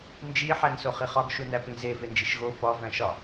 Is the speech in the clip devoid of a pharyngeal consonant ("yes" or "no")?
no